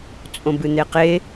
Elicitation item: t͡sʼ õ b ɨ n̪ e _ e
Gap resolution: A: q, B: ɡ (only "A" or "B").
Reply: A